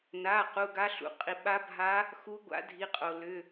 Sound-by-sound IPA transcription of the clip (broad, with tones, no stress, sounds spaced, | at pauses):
n a˩˧˩ q u˩˧˩ ɡ a˧˥ ɬ ṵ˩ qʼ i˩ ɓ a˧˥ bʱ a˧˥ | x u˧˥ ɡʷ a̰˧˥ dʱ i˩˧˩ qʼ o˩ l ʏ˩˧˩